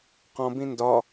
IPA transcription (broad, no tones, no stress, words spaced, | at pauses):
qɔ̃bĩ ndɒ